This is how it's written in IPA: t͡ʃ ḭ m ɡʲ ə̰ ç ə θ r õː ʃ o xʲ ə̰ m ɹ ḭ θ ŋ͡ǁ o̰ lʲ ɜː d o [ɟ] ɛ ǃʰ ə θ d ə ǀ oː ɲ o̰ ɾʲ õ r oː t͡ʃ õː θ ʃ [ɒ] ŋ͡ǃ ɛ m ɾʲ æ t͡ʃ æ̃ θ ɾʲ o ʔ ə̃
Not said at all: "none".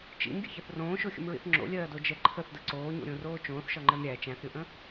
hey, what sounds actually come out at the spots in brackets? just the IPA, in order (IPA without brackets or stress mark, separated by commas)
d͡ʒ, ɒ